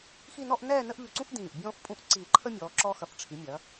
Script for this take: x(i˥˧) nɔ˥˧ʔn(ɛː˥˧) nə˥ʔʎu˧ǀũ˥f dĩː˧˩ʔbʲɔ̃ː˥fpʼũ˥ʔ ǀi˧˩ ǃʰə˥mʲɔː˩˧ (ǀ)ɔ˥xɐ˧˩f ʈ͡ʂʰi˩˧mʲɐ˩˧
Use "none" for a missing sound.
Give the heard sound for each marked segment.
i˥˧, ɛː˥˧, ǁ

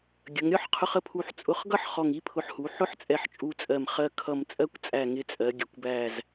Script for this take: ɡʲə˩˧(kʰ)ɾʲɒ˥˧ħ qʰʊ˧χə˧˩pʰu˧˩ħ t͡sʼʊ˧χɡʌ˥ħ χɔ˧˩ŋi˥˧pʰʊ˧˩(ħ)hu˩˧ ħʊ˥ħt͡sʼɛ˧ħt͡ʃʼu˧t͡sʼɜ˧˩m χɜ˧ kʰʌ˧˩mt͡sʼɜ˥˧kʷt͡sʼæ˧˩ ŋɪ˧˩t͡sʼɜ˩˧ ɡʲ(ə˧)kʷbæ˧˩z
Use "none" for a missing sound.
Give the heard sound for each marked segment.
ŋ, ħ, ə˩˧

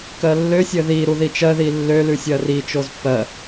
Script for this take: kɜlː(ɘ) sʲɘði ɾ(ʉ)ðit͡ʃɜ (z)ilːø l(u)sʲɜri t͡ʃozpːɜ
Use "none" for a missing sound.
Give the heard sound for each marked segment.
ø, u, ð, ʉ

